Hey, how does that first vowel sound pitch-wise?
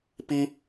high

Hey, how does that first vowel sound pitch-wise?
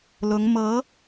rising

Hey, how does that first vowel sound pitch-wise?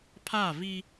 falling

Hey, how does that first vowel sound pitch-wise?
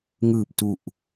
low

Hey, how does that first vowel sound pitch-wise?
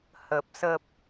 low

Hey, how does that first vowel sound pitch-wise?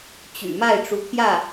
low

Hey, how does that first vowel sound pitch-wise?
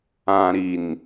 low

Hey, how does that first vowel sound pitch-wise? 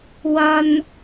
high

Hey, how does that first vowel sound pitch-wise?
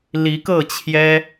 rising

